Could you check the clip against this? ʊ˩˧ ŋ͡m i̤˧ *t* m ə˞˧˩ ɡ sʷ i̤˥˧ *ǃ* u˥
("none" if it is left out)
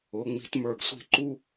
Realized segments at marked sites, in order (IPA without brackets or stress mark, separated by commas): t, ǃ